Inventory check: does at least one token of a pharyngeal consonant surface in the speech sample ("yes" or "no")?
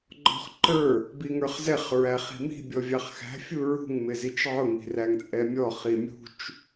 yes